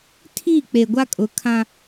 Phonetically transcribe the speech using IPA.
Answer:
tʰ i˦˨ k͡p e˨ ɡʷ a˦ kʼ ʊ˨˦ kʰ ã˦

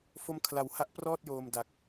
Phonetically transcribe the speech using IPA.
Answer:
f o˦˥ m kʰ l a˩˦ w h a˦˥ ʔ p r ɔː˥˩ t̚ j oː˧ m d a˨˩ k̚

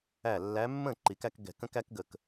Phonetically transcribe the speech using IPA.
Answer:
æ˧˩ lː æ˨˦ mː ə̃˥˩ ǃ i˨˩˦ k æ˨˦ k ɡ ɛ̤˧˩ k ə̃˦ k æ˦ k ɡ ə˧˩ k

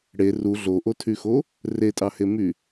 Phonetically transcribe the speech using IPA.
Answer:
ɽ e r u ɮ o ʔ o tʰ y x o | r e tʼ ɑ h e m y

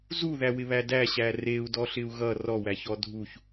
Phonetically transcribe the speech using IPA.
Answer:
z u ð æ w ɪ β æ d æ ɕ æ r e u̯ d ɔ ɬ ɪ u̯ ɣ ʌ r ɔ w æ ç ɔ dʱ u ç

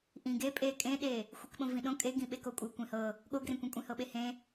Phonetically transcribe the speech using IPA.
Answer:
ʔ ĩ ɡ e pʼ e kʼ ẽ ɗ e | xʷ i k ɓ õ v ĩ ɗ õ kʼ e ɡ ĩ ɓ e k o kʷʼ ɤ kʷ ẽ h ɤ | ɠ o ɡ r ẽ kʷ ẽ kʷʼ ẽ h ɤ ɓ e h ẽ

